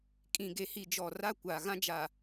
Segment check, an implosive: absent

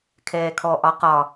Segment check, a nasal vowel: absent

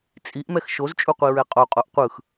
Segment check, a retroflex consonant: absent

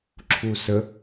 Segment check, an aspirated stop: present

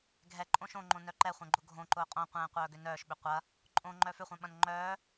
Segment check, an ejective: present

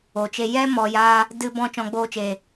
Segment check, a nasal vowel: present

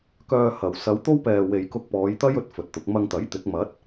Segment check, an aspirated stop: absent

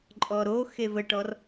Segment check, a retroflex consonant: present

